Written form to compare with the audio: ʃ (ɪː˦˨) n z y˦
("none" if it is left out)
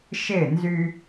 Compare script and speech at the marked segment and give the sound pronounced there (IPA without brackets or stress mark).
ɪː˦˨